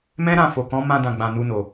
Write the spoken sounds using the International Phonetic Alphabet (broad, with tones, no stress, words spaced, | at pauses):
mɛ̃˦ɾã˦˨ fo˨kɔ̃˨˦mã˧ dã˨ɡ͡bã˨ nu˧no˨